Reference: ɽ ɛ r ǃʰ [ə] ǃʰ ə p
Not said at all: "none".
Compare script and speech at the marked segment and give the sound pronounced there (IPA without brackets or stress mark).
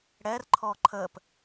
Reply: ɔ